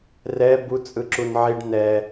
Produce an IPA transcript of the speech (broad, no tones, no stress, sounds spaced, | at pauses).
r ɛ b u t͡sʼ ɯ ǁ u n ʕ i ɖ n ɛ